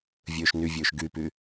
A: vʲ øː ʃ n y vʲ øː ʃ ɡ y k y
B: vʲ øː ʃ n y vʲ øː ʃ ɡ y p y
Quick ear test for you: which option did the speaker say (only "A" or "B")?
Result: B